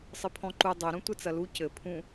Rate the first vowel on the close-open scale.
close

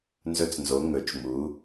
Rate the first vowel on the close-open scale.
mid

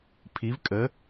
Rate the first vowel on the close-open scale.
close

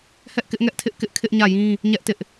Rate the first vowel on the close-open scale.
mid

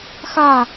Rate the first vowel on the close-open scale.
open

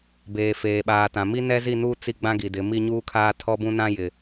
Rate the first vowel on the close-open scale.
mid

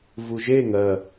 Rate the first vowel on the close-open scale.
close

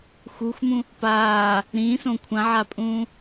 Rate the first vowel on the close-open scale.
close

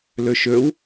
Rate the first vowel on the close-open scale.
mid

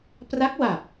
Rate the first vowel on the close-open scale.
open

